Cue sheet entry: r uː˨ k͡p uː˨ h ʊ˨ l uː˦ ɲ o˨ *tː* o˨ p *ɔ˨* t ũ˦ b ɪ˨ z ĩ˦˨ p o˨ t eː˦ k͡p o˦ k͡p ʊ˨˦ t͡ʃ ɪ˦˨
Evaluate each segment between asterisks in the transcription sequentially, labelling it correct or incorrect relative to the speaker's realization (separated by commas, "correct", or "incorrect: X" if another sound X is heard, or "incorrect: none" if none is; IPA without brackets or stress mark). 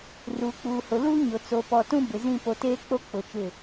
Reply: incorrect: t͡s, correct